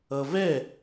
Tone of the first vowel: low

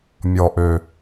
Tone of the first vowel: low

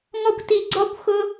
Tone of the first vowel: high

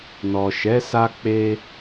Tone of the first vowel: low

